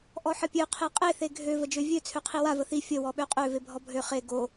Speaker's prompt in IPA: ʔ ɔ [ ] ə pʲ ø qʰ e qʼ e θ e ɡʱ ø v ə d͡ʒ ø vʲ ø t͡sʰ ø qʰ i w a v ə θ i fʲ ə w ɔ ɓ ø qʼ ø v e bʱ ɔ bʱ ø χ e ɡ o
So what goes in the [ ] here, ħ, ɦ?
ħ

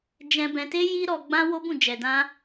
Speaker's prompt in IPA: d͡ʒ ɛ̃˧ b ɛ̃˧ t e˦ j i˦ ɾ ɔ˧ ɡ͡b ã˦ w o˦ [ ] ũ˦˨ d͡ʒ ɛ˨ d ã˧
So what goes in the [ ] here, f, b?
b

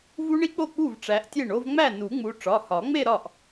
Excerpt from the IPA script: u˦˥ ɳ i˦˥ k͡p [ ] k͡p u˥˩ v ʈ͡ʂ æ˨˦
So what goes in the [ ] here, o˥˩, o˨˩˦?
o˥˩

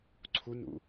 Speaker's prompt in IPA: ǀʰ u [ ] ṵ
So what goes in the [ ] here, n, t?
n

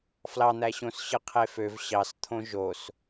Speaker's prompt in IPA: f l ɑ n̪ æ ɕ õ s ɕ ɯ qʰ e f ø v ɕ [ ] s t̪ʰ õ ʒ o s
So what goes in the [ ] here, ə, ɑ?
ɑ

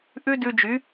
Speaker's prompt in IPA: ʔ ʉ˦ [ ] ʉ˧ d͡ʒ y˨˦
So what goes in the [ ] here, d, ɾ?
d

